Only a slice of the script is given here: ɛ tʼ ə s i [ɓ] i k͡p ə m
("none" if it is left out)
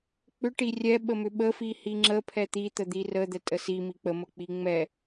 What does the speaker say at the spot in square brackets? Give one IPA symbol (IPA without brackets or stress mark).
m